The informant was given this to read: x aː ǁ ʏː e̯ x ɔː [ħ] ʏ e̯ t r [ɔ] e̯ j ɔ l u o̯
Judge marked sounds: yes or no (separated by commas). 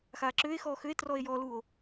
no, yes